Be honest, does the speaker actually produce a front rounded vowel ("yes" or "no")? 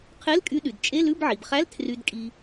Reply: yes